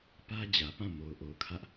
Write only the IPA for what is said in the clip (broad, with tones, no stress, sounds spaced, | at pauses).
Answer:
p ä˦ d͡ʑ ä˨ p ã˦˨ m o˨ ʊ̯ ʔ o˨ ʊ̯ kʰ ä˦ ʔ